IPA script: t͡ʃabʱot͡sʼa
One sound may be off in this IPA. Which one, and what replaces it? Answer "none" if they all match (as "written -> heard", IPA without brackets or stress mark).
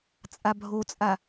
t͡ʃ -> t͡sʼ